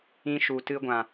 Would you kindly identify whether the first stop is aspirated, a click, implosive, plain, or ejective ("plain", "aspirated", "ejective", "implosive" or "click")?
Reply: plain